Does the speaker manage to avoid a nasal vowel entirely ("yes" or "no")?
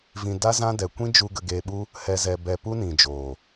no